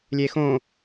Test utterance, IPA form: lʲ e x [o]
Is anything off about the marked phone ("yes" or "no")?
yes